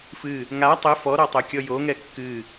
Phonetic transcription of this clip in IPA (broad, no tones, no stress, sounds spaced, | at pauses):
f ɨ | ŋ a tˤ ɘ f ɔ ɾ ɔ tˤ o kʲ ɔ j o ŋ ɛ kː ɨ